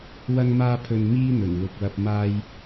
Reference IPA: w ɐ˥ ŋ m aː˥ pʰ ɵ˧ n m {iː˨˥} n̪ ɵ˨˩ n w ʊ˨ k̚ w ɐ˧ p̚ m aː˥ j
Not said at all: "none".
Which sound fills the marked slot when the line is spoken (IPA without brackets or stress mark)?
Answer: iː˥